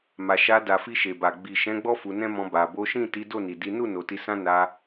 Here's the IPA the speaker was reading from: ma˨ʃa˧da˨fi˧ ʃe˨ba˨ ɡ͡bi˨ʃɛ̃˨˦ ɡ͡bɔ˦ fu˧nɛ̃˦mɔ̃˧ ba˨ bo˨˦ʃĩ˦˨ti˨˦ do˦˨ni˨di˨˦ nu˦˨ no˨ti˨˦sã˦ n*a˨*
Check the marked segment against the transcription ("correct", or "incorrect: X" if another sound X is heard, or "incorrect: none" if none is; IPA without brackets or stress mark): incorrect: a˧